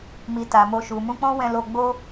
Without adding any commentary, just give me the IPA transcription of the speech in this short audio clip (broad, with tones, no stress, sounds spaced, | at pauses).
m i˨ t a˨ m o˧ ʃ u˨ m ũ˧ k͡p ɔ̃˦ w ɛ̃˧ l o˧ ɡ͡b o˦